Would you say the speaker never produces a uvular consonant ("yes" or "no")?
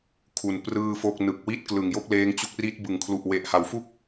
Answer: yes